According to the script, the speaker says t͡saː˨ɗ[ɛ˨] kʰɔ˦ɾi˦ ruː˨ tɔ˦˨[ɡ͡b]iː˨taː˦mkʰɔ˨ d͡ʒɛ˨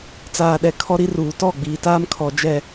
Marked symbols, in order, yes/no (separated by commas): yes, yes